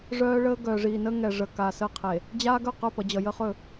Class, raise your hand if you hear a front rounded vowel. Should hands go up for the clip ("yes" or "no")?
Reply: yes